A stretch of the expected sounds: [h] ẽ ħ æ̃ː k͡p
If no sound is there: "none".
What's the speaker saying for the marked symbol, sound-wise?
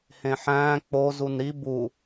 h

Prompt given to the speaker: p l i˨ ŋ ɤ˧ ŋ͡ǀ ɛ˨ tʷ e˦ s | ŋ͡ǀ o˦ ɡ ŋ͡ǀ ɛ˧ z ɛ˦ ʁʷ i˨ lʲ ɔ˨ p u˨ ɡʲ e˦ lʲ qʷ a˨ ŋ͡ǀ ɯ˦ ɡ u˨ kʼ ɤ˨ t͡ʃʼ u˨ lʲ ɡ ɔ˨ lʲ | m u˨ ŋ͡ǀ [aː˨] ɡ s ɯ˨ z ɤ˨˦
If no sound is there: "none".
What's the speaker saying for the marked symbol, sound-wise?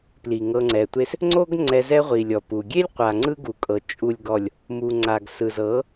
a˨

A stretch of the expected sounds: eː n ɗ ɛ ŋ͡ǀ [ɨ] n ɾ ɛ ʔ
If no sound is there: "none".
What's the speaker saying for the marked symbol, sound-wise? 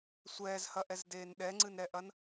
ɨ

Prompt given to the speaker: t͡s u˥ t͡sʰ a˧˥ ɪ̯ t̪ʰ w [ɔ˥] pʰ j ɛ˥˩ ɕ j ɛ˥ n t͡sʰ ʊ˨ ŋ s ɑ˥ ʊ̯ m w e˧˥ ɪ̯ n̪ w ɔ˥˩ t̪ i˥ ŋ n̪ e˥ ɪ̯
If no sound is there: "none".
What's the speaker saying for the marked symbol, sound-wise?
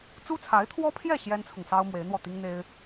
ɔ˥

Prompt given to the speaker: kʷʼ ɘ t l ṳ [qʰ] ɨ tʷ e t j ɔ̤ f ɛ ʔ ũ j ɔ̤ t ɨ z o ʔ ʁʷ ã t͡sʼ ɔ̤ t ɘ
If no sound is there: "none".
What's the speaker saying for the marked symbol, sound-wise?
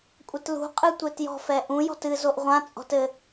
qʼ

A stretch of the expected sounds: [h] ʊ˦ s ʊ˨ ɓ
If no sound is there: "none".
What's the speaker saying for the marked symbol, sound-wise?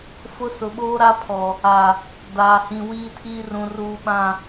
f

